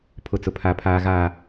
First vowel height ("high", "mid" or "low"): high